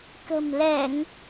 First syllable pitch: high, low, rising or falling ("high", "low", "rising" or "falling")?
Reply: low